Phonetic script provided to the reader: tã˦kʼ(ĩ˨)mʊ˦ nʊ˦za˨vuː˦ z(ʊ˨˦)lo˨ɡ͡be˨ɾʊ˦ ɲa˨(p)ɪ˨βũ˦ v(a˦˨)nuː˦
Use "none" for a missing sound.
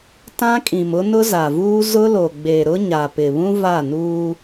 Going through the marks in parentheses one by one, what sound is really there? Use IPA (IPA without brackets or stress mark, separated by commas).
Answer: ĩ˨, ʊ˦, p, a˦˨